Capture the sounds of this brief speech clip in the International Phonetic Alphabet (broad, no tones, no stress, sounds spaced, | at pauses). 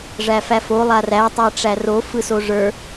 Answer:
ʐ æ f æ f o lˠ a r æ tˤ æ ʈ͡ʂ æ r o f ɯ s o ʐ ə˞